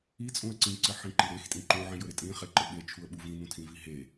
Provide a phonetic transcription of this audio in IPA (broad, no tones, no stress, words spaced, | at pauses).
it͡sʼũə̯ ǀĩǀɘħĩ ǃiɾex tʼĩǃũ ʕĩjɵɾɪtʼĩ χeǃɘɓet͡ʃʰuə̯ ɓuvĩ nũtʰĩviɦe